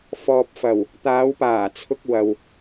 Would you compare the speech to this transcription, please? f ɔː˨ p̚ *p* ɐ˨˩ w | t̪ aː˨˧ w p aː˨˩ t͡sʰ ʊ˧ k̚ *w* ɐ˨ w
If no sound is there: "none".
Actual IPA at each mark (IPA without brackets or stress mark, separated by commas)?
f, w